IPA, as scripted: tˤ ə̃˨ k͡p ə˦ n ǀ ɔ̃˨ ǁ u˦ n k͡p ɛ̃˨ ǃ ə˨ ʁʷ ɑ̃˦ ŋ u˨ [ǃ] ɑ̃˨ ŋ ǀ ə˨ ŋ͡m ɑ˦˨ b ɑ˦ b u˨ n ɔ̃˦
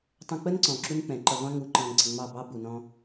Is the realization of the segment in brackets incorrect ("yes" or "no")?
no